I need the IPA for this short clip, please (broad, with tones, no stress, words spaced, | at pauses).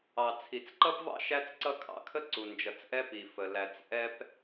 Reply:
ɑ˨t͡sʰi˨t͡sǃʌ˦pvɑ̰˦ ʃæ˦t͡sǀʌ˦kʰɑ̰˦kʰə˦ ǀu˨nd͡ʒʌ˨t͡sʔɛ˦ pi˨fə˨ læ˨t͡sʔɛ˦p